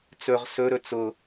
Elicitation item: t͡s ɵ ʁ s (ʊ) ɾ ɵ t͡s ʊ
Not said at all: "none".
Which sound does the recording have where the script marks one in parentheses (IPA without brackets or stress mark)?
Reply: ɵ